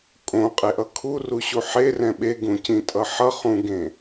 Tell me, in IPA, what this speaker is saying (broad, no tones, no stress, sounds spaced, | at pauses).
kʼ õ qʼ e ʔ ʌ kʰ u r u ɕ u ħ e r ɛ̃ ɓ e ɡ ũ c ĩ tʼ ʌ ħ ʌ χ ũ ɡ ẽ